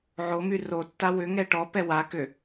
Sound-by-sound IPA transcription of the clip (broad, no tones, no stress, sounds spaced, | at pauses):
ʕ o m y r o tː a w ʏ ŋ ɛ ʈ ɔ p ɛ w a k ʏ